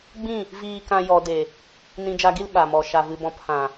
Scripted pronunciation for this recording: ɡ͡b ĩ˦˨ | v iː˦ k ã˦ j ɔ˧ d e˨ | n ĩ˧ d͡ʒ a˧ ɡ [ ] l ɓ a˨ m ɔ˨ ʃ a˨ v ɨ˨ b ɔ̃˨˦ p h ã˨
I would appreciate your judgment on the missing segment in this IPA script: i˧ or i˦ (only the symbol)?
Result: i˦